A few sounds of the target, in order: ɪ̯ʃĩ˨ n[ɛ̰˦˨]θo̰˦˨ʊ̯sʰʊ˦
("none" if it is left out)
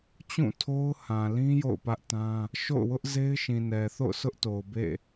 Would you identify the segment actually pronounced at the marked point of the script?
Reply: ɛ˨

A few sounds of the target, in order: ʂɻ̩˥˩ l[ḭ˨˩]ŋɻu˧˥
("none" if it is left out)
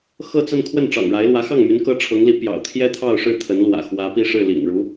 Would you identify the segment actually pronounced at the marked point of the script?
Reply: ḭ˨˩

